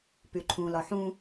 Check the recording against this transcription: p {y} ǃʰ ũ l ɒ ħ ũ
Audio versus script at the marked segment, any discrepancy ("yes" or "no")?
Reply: no